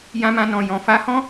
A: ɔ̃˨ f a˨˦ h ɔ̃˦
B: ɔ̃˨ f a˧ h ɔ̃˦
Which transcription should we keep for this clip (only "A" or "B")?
A